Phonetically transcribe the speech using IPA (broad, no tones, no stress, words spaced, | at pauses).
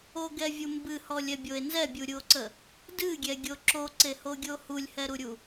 oɡɛvʲu mbɨhɔlʲɛbʲoe̯ nzɛbʲuɾʲuo̯ǀə | dɨɡʲɛɡʲo ǁoǀehoɡʲo hulʲhɛɾuɾʲu